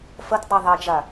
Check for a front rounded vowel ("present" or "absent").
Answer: absent